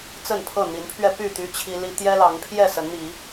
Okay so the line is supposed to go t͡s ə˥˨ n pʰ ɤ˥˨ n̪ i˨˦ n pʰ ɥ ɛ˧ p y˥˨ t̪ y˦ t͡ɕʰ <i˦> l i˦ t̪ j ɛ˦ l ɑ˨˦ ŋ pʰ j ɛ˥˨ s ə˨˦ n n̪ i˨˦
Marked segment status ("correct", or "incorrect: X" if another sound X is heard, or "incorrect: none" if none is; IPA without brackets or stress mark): correct